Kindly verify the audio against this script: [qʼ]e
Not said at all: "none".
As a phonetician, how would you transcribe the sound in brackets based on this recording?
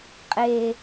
qʼ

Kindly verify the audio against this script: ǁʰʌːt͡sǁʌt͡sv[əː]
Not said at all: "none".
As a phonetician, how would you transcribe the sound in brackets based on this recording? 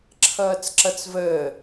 əː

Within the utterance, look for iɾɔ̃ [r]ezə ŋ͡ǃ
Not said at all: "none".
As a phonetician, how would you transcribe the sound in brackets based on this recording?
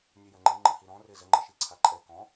r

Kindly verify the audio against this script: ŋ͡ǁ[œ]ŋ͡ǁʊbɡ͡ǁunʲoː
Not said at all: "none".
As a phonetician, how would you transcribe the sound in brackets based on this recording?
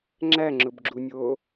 æ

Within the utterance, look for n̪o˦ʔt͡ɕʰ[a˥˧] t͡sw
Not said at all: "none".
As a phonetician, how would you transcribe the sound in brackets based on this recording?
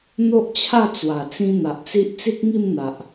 a˥˧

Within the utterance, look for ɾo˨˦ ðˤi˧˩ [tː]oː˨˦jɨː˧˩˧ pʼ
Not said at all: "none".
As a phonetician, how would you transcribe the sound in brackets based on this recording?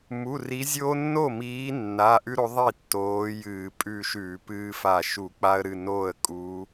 tː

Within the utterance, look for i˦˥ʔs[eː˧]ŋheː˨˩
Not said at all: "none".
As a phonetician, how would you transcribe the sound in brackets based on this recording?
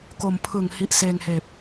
eː˧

